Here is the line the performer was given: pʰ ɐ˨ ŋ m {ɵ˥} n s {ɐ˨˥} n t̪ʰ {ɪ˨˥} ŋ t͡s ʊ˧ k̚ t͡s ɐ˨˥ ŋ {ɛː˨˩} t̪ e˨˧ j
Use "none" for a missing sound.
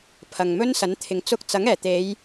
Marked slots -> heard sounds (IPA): ɵ˥, ɐ˨˥, ɪ˨˧, ɛː˨˩

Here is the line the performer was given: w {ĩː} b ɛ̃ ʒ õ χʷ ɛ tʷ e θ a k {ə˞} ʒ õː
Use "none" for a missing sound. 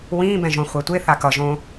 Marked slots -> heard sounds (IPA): ĩː, ʌ

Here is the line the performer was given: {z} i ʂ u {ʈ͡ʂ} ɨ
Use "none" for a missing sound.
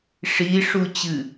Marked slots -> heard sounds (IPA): ʂ, t͡ɕ

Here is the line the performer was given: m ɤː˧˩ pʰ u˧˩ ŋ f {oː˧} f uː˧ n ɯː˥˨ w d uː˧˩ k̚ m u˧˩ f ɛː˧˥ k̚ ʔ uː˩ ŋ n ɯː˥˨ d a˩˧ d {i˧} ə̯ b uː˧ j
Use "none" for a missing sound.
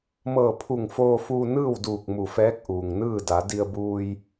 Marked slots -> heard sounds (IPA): oː˧, i˧

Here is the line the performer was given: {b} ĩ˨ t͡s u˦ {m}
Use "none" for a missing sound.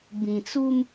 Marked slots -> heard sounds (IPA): b, m

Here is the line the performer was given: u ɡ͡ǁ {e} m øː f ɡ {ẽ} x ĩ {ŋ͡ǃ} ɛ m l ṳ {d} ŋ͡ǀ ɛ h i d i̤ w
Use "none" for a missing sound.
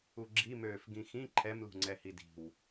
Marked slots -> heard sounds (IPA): i, ĩ, ǃʰ, none

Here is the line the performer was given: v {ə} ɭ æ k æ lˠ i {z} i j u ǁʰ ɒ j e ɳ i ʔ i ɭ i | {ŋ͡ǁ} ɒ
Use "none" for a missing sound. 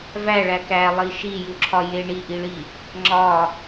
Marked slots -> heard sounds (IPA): æ, ʃ, ŋ͡ǁ

